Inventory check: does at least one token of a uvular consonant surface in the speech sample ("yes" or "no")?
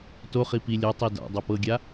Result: yes